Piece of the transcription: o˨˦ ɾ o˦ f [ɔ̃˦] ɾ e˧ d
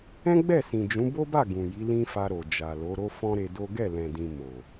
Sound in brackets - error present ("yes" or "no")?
no